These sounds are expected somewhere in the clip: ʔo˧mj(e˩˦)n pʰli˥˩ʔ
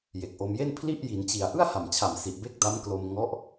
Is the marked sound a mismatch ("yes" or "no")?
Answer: yes